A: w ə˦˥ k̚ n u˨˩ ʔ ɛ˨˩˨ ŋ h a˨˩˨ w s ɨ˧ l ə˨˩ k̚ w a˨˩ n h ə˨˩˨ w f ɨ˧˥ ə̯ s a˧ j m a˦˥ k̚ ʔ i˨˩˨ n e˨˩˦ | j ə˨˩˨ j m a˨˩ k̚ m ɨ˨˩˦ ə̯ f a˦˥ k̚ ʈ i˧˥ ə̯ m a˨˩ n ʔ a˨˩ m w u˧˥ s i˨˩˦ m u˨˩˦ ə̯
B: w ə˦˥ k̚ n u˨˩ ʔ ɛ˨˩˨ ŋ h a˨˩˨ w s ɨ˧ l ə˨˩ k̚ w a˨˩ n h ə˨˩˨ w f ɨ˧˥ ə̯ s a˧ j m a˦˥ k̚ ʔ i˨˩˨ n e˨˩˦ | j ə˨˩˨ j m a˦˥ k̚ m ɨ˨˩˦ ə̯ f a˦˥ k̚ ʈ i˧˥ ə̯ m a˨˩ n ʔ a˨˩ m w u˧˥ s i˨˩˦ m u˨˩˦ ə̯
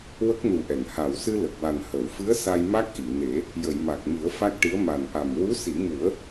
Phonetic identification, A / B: A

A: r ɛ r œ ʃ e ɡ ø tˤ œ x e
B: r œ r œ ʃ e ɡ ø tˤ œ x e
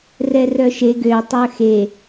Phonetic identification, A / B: A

